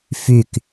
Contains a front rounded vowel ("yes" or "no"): yes